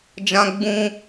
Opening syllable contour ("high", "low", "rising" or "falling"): high